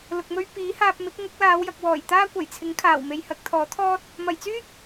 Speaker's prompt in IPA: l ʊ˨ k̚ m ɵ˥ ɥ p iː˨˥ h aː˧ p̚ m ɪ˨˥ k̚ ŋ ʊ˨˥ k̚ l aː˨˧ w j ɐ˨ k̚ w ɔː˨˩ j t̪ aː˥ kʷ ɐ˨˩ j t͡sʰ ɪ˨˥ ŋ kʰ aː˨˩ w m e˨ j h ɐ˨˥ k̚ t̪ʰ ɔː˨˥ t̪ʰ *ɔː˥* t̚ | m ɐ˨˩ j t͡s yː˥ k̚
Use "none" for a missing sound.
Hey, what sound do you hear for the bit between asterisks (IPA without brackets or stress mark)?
ɔː˥